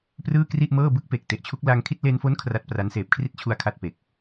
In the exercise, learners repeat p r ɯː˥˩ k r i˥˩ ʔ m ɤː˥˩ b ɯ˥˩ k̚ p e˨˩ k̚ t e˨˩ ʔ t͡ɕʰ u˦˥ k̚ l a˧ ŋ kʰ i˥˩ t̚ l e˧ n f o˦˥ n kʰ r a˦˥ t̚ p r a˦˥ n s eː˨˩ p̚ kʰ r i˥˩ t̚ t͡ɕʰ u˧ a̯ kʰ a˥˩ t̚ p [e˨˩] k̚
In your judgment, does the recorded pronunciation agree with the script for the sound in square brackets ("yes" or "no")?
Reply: yes